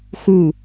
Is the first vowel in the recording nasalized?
no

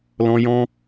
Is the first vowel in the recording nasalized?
yes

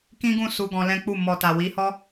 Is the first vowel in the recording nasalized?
yes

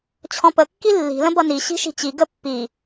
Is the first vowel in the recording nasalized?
yes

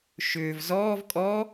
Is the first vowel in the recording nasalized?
no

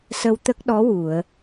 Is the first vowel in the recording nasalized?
no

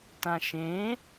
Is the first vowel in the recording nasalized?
yes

